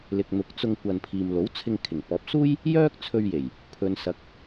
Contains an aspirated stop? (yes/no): yes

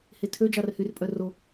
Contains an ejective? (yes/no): yes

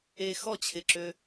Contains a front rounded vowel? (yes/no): yes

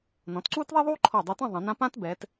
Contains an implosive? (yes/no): no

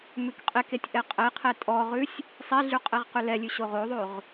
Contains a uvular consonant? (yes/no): yes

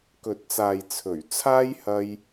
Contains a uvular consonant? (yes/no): no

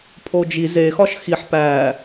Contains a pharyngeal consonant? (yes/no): yes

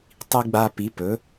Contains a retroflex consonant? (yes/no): no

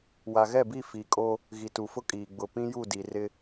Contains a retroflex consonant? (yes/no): no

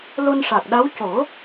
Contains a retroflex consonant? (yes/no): yes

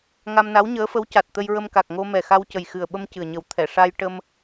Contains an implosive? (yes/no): yes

